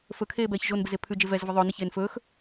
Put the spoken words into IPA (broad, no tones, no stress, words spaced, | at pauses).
fɵkʰeːbɛːç ʒonbɪze pʰʉd͡ʒe vɛzvɪ ðˤɵːnɪçeːn fɵːx